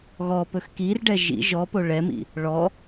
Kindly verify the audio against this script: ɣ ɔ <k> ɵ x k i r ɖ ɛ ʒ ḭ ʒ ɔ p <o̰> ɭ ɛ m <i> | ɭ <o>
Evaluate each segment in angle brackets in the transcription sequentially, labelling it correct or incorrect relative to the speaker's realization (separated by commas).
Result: incorrect, incorrect, incorrect, incorrect